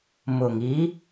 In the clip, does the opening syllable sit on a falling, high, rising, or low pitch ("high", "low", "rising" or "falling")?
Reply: low